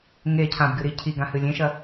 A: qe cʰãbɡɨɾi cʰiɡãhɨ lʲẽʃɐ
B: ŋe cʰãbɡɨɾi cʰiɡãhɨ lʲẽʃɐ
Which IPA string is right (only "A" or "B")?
B